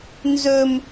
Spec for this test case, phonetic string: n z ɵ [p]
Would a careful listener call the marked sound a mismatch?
yes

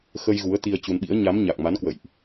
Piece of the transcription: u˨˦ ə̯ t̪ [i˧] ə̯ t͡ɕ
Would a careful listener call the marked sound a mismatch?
no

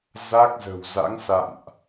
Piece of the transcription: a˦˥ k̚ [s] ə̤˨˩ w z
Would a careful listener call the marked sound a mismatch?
yes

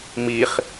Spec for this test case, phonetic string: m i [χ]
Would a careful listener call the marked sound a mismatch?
no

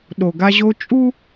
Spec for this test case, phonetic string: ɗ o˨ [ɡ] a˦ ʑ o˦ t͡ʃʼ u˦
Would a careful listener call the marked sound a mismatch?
no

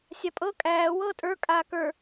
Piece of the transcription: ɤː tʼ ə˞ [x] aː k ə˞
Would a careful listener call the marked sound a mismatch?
yes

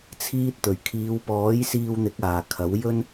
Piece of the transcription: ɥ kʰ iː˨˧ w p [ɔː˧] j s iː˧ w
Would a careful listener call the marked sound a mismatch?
yes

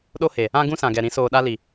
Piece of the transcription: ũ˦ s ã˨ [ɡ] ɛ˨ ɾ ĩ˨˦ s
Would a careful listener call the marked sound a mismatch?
no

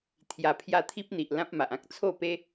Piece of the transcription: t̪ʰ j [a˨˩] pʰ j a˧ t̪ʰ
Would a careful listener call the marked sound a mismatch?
no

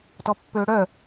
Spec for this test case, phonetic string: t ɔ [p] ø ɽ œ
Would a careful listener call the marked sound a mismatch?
yes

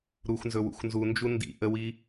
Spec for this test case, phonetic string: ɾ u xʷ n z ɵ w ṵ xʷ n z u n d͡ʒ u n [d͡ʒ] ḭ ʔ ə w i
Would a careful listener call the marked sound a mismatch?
yes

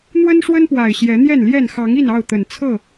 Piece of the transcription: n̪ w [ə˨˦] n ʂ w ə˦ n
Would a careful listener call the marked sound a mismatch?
yes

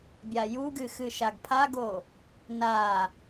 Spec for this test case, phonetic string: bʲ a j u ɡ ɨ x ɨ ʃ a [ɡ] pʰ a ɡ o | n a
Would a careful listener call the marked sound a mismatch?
no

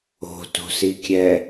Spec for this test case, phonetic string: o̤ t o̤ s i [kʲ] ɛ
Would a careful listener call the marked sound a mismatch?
no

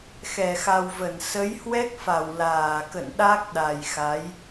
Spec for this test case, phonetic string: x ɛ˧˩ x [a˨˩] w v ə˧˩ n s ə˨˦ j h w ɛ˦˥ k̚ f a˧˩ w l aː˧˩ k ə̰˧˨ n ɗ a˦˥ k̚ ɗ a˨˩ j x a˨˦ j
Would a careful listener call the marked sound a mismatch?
no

